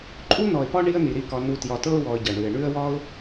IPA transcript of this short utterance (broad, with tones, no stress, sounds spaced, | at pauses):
ǃʼ u˦ n ɔ˨ ɪ̯ p ɒ˦ ɳ i˧ ə̯ n i˨ ɾ i˦˨ k ɒ˧ n u˧ t j ɒ˧ t ɤ˦ ʊ̯ w ɔ˧ ə̯ ɟ ʌ˨ ɳ ʉ˨ ɪ̯ ɳ ʉ˦ ə̯ w ɒ˦ ʊ̯